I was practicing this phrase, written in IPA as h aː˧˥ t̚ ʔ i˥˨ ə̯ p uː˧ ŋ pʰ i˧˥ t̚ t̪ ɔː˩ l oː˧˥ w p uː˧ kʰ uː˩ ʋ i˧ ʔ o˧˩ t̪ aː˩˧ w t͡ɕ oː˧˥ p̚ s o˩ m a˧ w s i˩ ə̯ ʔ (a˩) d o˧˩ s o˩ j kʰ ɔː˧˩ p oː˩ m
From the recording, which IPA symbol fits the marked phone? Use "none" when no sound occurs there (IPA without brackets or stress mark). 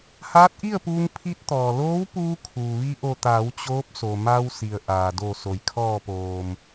aː˩